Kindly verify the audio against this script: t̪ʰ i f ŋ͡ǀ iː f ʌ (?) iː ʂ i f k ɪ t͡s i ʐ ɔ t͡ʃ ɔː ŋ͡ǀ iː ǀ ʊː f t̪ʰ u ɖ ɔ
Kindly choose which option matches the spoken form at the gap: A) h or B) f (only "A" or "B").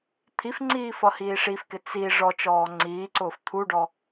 A